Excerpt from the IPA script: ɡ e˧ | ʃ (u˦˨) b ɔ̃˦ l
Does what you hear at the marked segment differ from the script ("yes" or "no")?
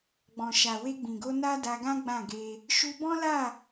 yes